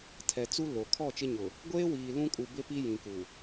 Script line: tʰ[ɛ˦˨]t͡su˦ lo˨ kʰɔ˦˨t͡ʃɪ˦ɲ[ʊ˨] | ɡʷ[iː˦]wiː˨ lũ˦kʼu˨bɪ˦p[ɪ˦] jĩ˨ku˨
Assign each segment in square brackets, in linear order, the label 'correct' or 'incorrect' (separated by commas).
incorrect, correct, incorrect, incorrect